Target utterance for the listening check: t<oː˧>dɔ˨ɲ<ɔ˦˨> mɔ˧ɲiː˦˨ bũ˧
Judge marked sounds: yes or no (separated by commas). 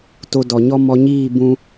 no, no